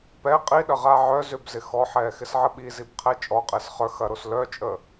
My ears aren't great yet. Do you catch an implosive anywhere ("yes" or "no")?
yes